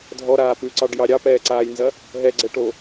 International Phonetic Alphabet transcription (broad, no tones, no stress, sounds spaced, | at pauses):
dʱ ɔ ɾ aː p ʉ ǀ ɑ ɖ j ɑ ɾʲ ɑ p ɛː ǀ aː j n z ɐ | ɦ ɛ ɡ͡ǀ ɛ ʈ o